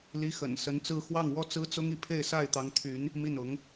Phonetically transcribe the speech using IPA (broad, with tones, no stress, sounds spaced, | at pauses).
l i˧˥ x ə̰˨˩ n s ə˧˥ n t͡s ɹ̩˥˧ x w ɑ˥˩ ŋ w ɔ˥ t͡s ɹ̩˥ t͡s ʊ˥ ŋ i˥˧ pʰ e˥˧ ɪ̯ s a˥˩ ɪ̯ t̪ ɑ˧˥ ŋ t̪ʰ y˧˥ n | m i˥˩ n ʊ˧˥ ŋ